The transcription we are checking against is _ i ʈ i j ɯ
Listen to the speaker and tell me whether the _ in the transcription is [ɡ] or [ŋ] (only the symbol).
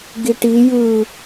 ɡ